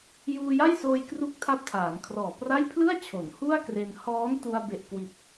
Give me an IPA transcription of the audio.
j uː˧ j a˥˩ j s oː˧ j k r u˦˥ k̚ tʰ a˦˥ p̚ tʰ aː˩˦ n kʰ r ɔː˨˩ p r a˥˩ j pʰ l ɯ˥˩ a̯ t͡ɕʰ o˩˦ n h u˥˩ a̯ k r e˧ n h ɔː˦˥ n t u˧ a̯ b e˨˩ ʔ k w i˨˩ t̚

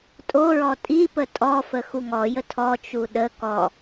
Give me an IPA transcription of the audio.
tʼ o ɹ ɔ tʼ i p ə tʼ ɔ f ə x u ŋ ɔ j ə tʰ ɔ t͡ʃ u ɗ ə k ɔ

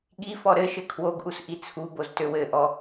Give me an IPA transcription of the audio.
ɠ i f ɔ ɾ ɘ ʃ ɘ kʰ w o ɡ ʔ u s ʔ i t͡sʰ u b o z t ø w ɘ ʔ ɔ

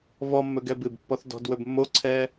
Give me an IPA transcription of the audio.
v ɔ mː ɵ ɡ ɛ b ɨ b pː ɔ θ d ɔ̤ d w ɵ b mː o ǀʰ ɛ

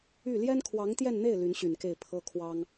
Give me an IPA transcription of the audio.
y˥˩ l j ɛ˥ n kʰ w ɑ˧˥ ŋ t̪ j ɛ˥˧ n n̪ e˥˩ ɪ̯ l y˧˥ n ɕ y˨˩ n k e˥˩ ɪ̯ pʰ ɤ˥ kʰ w ɑ˥ ŋ

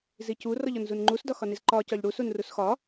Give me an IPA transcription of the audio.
z i c u r ɔ ʎ ɔ n z u n ŋ͡ǃ u s d ɒ x ɒ n i z ǃ ɒ c ɒ ʎ ɽ u s u n r u s x ɒ

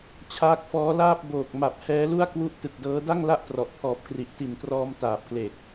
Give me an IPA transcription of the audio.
t͡ɕʰ aː˦˥ k̚ f ɔː˦˥ l aː˥˩ p̚ b oː˨˩ k̚ m a˨˩ p̚ h ɛː˦˥ l u˥˩ a̯ k w u˥˩ ʔ t ɯ˨˩ k̚ d ɤː˦˥ d a˥˩ ŋ l a˥˩ ʔ t r ɔ˨˩ ʔ pʰ ɔː˨˩ p̚ k r i˨˩ ʔ t i˨˩ n k r ɔː˧ m t aː˨˩ p̚ k l e˨˩ k̚

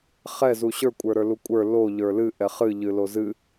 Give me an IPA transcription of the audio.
χ ɛ z u ɕ ə˞ kʷʼ ə˞ ɾ ə˞ l u kʷʼ ə˞ l o ʎ ə˞ l ɨ ʔ ɛ χ ɨ ʎ ɨ l o z ɨ

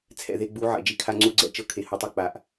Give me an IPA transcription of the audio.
t͡sʰ ɛ̰˨ ð e˨ ɡ͡b u˨˦ ʕ ɛ̰˨ d͡ʒ i˦ kʰ a˦ ŋ͡ǀ u˦ ɡ͡ǀ ɛ̰˦˨ t͡ʃ ɤ˦ kʰ e˨ h u˨ tˤ e˦ k͡p a˨ ʔ

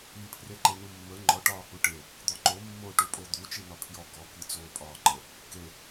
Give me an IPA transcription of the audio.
i pʰ r e ǃ e n u mː ə ŋ͡ǃ ɔ ʈ ɒː h u ʈ e | d̪ ɔ ǃ o mː o ʈ u pʼ o d̪ u t͡ʃ i n ɒ pʰ j ɔ ɡ ɔ k i t͡s oː pʼ ɒː ǃ ə | k e

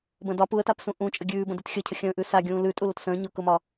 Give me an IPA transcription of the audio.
b ə̃ː d ɒ p u ə̯ t a p s ũ ʔ ũ t͡ʃʼ ə ɡʲ ʉː b ə̃ d ʉ t xʲ ə cʰ ə xʲ ə̃ː ʔ ʉ s a ɡʲ ũː l ʉ tʼ u l ə t s ə̃ː ɲ ʊ k ʊ m ɒ

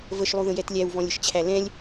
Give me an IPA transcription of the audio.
v ə ʃ lˠ u ð ə̃ j ɛ t lʲ æ w v ɔ̃ lʲ ə ʃ t͡ɕʰ æ l ɛ̃ lʲ

